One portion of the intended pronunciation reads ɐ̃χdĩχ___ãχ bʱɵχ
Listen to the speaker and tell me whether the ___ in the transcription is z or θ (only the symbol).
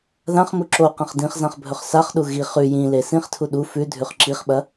z